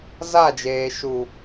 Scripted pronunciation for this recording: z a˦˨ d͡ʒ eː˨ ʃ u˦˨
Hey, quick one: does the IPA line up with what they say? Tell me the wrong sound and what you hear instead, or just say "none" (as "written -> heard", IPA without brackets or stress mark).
u˦˨ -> u˨